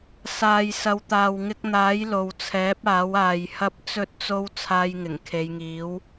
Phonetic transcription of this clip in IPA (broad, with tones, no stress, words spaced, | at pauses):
saː˨jsɐ˨˧wt̪aː˨w ŋɪ˧k̚n̪aː˨˥j lo˨wt͡sʰɛː˨˥p̚ aː˨˥waː˨jhɐ˥p̚ t͡sɵ˧t̚t͡so˧w t͡sʰaː˧jŋɪ˨˩ŋ kʰe˨˧jŋiː˨˥w